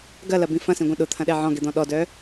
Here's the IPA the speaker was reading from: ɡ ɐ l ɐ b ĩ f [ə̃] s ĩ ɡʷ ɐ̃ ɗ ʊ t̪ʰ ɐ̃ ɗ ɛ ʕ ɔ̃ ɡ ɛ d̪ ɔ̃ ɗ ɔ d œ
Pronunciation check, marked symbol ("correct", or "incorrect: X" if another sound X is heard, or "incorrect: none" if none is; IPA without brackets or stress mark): incorrect: ɐ̃